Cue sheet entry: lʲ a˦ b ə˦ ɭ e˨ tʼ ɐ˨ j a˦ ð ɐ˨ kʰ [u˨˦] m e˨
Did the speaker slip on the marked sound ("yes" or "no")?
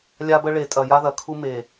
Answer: yes